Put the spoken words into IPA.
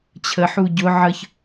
t͡ɕʰ ə ħ u ɟ ʊ ʕ ə ç

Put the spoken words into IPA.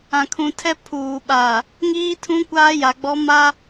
ã˨ kʰ ũ˨ tʰ ɛ˦ pʰ uː˨ ɓ aː˨ | ŋ iː˦ tʰ ũ˦ kʷ aː˦ j a˨ ɡ͡b ɔ˦ m a˦

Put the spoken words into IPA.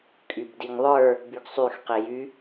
kʼ y b d i ŋ ðˤ ə˞ | b y ɡ sˤ y x q i j y

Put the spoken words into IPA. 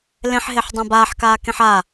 l ẽ ħ ɦ e ħ dˤ ã b aː ħ k aː k ẽ ħ a

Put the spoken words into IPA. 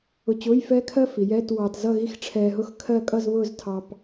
ʊ˧ t͡ɕ ʊː˧˥˧ j f ɛː˦˥ kʰ ɜ˦˥ f i˩˧ j ɛː˧˥˧ t w ɑː˧ t z ʌ˥˧ ɣ i˥˧ x ʈ͡ʂʰ ɛː˧ ɦ ʊ˦˥ x kʰ ɜ˥˧ kʼ ʌ˥˧ z β ʊː˥˧ z tʰ ɑ˧ p

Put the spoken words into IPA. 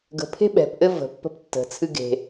ɡ ə̤ pʰ e̤ ɓ ɛ̤ p ʔ ɘ v ə̤ pː ə̤ p tː ə̤ t͡sʰ ɨ ɡ e̤

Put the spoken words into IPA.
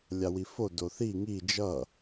lʲ a w i f o d o θ i ŋ i d͡ʒ ʌ

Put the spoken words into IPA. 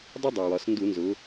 dˤ ɪ˥ dˤ ɜ˩ w ɒ˩˧ s n d u˧˩˧ n z ʊ˩˧

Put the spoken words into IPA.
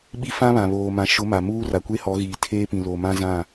ɓ i˦ f ã˦ β ã˨ β oː˨ m ã˨ ʃ ʊ˨˦ m a˨ m uː˦ r a˨ kʷ e˦ h ɔ˨˦ ɣ iː˨ tʰ eː˦ p ĩ˨ l o˨ m ã˦ z ã˦˨

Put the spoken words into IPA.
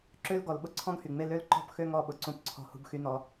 ǁ ø˦ l ɡ ɔ˨ l ɓ ʊ˦ ǀʰ ɔ̃˦ ɡ h y˨ ŋ͡m e˦ l ø˦ l ǃ ɔ̤˦ p x ø˦ ŋ ɔ˦ ɓ ʊ˨ ǀ ũ˦ p ǀʰ ɔ̤˦ h ṳ˦ b x y˦ n ɔ˦

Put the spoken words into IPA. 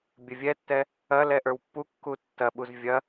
bʲ ɐ vʲ ɛ tː ɛ | ɐ l ɛ ʔ ə˞ w pː u kː u tː ɐ ɓ u z vʲ ɐ

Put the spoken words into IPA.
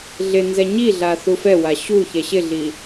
ɮ ɪ n z ɛ ɲ i ɮ a θ u f ɛ w a ɕ u ç ɛ ɕ ɪ ɮ i

